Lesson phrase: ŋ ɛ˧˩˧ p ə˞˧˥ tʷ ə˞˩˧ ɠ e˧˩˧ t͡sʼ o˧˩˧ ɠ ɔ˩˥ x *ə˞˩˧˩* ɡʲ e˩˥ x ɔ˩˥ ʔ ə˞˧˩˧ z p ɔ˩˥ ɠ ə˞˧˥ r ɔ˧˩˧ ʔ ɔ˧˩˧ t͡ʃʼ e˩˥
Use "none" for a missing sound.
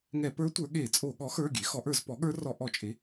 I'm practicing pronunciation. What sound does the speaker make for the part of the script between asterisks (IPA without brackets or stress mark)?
ə˞˩˧˩